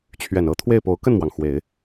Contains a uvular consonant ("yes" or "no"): no